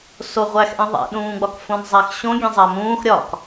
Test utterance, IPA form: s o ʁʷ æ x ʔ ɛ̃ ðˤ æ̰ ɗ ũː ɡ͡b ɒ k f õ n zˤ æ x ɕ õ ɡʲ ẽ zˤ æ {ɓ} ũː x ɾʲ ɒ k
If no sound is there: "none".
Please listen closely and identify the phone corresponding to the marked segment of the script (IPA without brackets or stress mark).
m